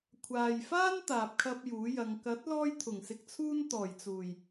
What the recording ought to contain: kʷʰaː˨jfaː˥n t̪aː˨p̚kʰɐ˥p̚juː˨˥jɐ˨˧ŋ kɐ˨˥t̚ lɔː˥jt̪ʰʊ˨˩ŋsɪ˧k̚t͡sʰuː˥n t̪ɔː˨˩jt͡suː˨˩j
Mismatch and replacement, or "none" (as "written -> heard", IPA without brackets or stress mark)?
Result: none